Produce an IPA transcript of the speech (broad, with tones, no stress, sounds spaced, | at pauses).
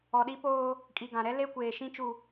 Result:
ɔ˨ ɗ i˦ p oː˦ | kʼ i˨ ɡ ã˨ ɾ ɛ˦ l e˦ kʷ eː˨ ʃ ĩ˦ t͡ʃ u˨